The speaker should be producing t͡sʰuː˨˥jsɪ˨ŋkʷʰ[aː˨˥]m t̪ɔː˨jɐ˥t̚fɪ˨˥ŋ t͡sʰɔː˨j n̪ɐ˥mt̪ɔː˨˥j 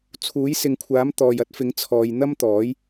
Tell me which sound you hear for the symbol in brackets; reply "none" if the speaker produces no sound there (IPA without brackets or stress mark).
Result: aː˨˥